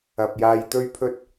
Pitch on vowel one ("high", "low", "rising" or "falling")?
low